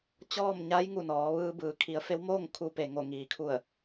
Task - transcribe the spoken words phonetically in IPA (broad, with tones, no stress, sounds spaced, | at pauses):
t͡ɕ ɔː˥˨ m ɲ a˧˥ j ŋ u˧˩ n ɔː˩˧ ʋ ɯː˧ b ɯː˩˧ kʰ i˩˧ ə̯ f e˧˥ w m oː˥˨ ŋ kʰ u˧ p e˩ ŋ o˧˩ ŋ iː˩ kʰ u˧˩ ə̯